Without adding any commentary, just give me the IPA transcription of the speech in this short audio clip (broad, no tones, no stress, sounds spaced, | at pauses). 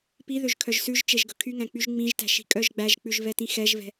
p i ð ø ʒ kʰ œ ʒ s ʉ ʒ t͡ʃ e ʒ ɡ ɵ kʰ y ŋ æ̃ k͡p y ʒ ŋ͡m ĩ ʒ t æ̤ ʃ i̤ kʼ œ ʒ ɡ͡b æ ʒ k͡p ʉ ʒ v ɛ t ĩ x ɛ ʒ v ɛ̤